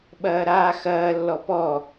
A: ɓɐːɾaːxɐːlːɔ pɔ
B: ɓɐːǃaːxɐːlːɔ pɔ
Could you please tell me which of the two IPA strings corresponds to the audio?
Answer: A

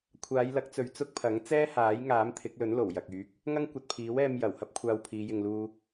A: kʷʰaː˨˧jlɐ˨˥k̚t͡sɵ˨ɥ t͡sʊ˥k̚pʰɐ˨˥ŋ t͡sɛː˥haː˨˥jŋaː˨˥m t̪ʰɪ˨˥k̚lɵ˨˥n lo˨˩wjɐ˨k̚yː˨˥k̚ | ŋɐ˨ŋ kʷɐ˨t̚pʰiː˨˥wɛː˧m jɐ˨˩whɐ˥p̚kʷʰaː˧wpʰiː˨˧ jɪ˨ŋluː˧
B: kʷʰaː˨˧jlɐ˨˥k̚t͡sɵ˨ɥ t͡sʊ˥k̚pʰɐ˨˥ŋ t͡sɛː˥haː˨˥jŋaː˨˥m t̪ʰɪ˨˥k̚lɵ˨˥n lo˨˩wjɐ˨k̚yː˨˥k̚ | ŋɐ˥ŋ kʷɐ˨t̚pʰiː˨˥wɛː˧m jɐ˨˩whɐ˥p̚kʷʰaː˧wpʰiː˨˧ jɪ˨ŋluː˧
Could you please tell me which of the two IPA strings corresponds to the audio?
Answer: B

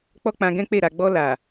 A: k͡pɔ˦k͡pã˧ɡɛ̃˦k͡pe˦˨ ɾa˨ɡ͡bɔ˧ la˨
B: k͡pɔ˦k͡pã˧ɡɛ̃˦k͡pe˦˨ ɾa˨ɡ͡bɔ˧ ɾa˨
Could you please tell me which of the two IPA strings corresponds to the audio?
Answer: A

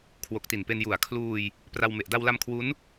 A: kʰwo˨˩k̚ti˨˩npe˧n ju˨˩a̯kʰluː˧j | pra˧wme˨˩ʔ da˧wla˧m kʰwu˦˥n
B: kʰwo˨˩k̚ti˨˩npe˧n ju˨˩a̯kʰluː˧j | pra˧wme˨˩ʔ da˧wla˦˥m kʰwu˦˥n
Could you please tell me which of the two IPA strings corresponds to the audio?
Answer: A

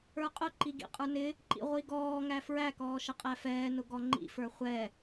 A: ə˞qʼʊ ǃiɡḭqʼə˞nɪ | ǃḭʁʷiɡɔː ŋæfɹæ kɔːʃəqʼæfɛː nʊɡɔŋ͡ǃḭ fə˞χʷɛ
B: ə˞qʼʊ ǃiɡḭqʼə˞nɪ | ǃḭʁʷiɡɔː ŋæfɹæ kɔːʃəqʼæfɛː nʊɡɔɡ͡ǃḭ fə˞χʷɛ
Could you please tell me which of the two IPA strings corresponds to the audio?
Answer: A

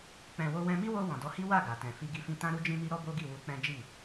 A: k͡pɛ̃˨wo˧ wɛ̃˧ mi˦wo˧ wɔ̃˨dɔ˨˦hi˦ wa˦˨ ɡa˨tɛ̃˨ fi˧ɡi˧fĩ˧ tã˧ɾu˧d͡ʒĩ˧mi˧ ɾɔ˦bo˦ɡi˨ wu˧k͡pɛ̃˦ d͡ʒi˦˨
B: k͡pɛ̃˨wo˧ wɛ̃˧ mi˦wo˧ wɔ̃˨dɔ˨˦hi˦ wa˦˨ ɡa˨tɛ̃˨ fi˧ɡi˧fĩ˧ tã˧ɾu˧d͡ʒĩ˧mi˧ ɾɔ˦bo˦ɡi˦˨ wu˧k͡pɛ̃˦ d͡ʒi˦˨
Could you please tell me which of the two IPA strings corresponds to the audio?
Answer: B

